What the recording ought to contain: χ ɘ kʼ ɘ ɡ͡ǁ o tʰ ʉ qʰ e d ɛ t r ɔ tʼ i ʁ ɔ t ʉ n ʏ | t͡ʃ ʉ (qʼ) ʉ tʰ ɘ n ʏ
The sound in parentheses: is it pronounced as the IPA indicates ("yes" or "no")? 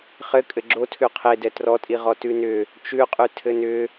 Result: yes